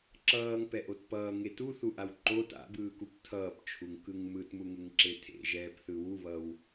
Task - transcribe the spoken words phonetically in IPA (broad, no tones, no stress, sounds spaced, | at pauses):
ǁ ʌː ŋ p ɛ ʔ o t p ʌː ŋ e t u θ u ʔ a w ǃ o t a̰ b ɯː k u p tʰ ʌː p t͡ʃʰ u ŋ k ɯ ŋ m ɯ t m u ŋ e ŋ ǁ e tʰ ḛ ʒ ɛː p θ ɯ w u β ʌ w